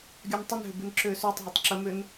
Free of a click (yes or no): no